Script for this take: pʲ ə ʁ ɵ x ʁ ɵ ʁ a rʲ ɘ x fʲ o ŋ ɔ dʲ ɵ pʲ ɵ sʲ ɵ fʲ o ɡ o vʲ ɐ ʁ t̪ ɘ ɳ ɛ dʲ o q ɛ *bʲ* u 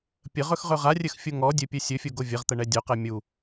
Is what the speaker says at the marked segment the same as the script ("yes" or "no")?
no